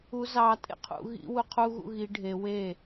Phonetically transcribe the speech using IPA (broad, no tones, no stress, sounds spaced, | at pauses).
u z ɑ tʼ ḛ qʰ ṵ ɣ ḭ w u qʰ u ɣ ṵ ɣ i ɖʱ e w e